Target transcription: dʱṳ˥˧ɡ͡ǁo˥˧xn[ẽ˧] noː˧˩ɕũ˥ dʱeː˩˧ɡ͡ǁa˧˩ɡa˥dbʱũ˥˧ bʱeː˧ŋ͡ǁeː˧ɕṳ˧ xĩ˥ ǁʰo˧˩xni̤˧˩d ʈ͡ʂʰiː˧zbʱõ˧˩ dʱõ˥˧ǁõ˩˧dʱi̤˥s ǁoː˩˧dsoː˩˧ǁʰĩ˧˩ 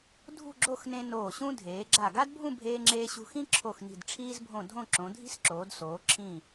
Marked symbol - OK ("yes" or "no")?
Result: yes